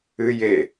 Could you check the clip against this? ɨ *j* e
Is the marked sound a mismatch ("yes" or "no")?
no